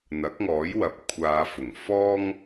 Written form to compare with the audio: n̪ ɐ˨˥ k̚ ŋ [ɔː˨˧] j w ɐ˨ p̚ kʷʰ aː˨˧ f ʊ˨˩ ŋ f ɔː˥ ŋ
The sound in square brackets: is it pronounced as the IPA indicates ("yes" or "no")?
no